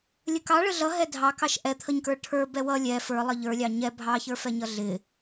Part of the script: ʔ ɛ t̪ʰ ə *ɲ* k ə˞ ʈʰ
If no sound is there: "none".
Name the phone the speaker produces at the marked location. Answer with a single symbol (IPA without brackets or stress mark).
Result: ɲ